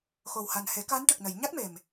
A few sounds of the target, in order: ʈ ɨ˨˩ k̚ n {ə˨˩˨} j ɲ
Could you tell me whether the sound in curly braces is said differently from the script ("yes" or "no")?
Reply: no